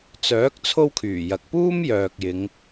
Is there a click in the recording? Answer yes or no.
no